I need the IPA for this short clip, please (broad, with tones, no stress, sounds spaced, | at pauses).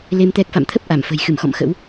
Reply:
l e˧ m t̪ ɛ˦˥ k̚ f a̰˧˨ m t̪ʰ ə˦˥ p̚ ʔ a˧˩ m f ə̤˨˩ j x ɨ˧˩ m x ɔ̰˧˨ m x ə̰˧˥ w